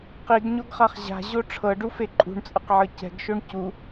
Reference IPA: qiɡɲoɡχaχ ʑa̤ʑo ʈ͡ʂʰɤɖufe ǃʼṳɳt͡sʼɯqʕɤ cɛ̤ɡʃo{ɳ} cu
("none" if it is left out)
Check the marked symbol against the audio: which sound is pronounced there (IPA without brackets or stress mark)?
ɳ